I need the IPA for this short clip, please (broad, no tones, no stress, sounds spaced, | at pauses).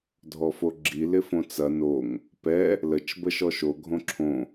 dʱ ɔ f o ɡ͡ǁ i l ɪ f õ t͡s ɐ n o ŋ | p ɛ | l ə t͡ʃ b ə ʃ ɔ ʃ o ɡʱ õ ǁʰ õ